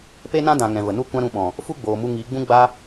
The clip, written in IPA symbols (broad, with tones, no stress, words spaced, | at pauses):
pe˦nã˦ dã˨ ŋɛ̃˨və˨ nu˧kʷã˧ ɾũ˧ɓɔ̃˨ | fu˦ɡ͡boː˨mu˧ ŋi˨˦ɡ͡bũ˦ ɡ͡ba˦